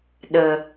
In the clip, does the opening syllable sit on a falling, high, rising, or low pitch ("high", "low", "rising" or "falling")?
low